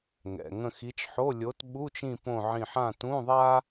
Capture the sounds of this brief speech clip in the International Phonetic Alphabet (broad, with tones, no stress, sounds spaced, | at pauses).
ŋ ɛ̰˩˧˩ ŋ ə̃˦˨ x i˨˥ t͡ʃ ħ o˧˥˧ lʲ o˨˥ t ɓ u˧˥˧ t͡ʃ ĩ˦˨ p õ˦˨ ʕ ĩ˦˨ ħ ã˦˨ t ũ˧˥˧ ðˤ a˥